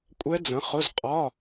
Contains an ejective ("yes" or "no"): yes